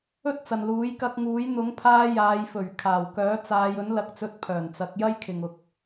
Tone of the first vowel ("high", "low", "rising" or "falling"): high